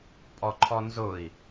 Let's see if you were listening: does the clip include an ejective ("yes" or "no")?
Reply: yes